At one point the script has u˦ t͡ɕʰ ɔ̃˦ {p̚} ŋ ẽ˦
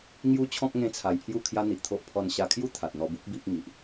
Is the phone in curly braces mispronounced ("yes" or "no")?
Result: yes